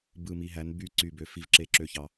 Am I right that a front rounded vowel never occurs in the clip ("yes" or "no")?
no